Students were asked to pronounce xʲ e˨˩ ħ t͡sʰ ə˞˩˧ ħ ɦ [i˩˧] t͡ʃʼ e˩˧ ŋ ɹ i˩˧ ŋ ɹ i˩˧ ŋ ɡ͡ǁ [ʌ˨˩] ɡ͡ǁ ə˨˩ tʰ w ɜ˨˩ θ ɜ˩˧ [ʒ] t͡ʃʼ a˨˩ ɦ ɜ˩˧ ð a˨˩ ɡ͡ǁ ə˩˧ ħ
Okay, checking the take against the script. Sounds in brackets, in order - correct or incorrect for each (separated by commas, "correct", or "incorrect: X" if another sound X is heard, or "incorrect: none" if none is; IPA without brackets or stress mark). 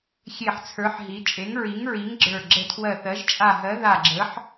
correct, incorrect: ə˞˨˩, correct